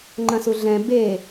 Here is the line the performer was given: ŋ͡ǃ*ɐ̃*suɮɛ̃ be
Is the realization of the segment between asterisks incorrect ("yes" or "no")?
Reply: no